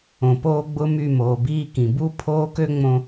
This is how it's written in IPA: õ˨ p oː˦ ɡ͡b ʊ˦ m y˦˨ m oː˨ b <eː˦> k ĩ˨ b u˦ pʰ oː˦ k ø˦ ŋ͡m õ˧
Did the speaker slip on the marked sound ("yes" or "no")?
yes